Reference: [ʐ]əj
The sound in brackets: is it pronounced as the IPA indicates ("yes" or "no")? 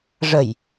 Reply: yes